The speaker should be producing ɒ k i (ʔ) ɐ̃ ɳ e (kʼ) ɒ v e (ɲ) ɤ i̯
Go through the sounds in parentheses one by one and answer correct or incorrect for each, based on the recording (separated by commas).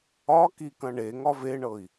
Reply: incorrect, incorrect, incorrect